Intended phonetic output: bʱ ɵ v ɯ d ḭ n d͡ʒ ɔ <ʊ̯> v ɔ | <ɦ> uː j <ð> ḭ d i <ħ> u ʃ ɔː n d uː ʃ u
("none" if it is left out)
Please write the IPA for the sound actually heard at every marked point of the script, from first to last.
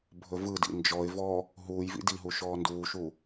ɪ̯, ɦ, v, ɦ

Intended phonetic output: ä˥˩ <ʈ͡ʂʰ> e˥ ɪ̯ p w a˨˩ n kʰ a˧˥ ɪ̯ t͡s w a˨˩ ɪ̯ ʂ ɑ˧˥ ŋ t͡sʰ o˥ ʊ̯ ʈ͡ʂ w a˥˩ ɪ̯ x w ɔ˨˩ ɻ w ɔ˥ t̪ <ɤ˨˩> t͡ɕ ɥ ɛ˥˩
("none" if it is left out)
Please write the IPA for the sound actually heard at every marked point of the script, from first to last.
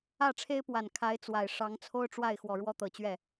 ʈ͡ʂʰ, ɤ˨˩

